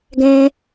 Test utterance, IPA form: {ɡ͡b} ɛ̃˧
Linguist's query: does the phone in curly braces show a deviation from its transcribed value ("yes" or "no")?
yes